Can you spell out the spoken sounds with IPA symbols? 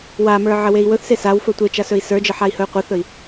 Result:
wamə˞ ʕəwei̯wɵθse sawfɵ tʷet͡ʃa sɵi̯sə˞d͡ʒə ħai̯hɵy̯qʷəθɵi̯

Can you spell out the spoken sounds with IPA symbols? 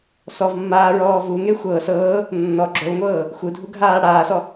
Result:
sɔvmːaːɹɔː vuŋe xʷɤ sɤː | nːɔ ɡ͡ǁolŋʷɤː | xʷɯdʱuɡʱaː ɽaːsɔ

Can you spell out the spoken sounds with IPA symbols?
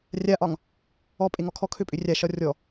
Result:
rʲaʔɒŋ | ɔpʼeŋɔ kʰɔkʰøpʼʏ rʲaʃɒ rʲɔ

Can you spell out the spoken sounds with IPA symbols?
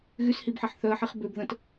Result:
ɣyshibħeħ θœə̯ħiχ bøb ðə̃t

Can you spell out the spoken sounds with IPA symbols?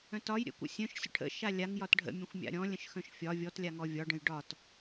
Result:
œ̃tɒj ɾʲə̰kʷə̰ sʲœ̃ʃ sʲə̰ʈʰə̰ ʃalʲaŋ jɒtɖʱə̰ mʲə̃xʷmʲa̰ɾʲɔ̃ lʲə̃ʃxœ̃ʃfʲɒ vʲɔtlʲaŋɔ vʲɒɖə̃j ɖɒt

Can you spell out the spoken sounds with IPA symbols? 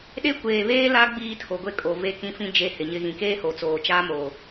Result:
ɗe˦kʷeː˨βeː˦la˦ ɡ͡biː˦tʰo˨ɡʷe˦kʼo˨ ve˦kĩ˦fĩ˦ d͡ʒe˦hɪ˨ɲɪ˦ ɣĩ˨keː˦ho˨ t͡soː˨t͡ʃaː˦ moː˨

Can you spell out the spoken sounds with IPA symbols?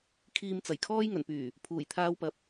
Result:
kʰiː˨m t͡sɐ˨˩j kʰɔː˧jŋɵ˨˩npyː˨˩ | pʰuː˨˩jt̪ʰaː˧wpɐ˨˥p̚

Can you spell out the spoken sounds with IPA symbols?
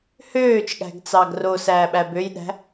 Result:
høːt͡ʃɠæ̤ɡt͡sɑ ɡrosæːɓæ bøjɗæ̤

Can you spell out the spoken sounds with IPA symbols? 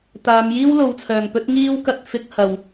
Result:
t̪aː˨˧mjiː˥w lo˨wt͡sʰœː˨˩ŋpɵ˥t̚ ŋiː˥wkɐ˧t̚fɪ˧k̚ hɐ˨˩w

